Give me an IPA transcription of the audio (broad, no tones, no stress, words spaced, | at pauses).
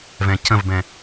vɛ̃cə̃vbɛ̃